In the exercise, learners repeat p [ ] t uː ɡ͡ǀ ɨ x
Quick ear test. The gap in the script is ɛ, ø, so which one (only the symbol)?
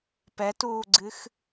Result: ɛ